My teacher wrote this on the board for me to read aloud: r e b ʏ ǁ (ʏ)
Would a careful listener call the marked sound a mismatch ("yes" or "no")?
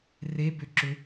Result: no